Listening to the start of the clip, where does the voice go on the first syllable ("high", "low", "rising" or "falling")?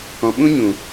low